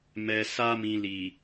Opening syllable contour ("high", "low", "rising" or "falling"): low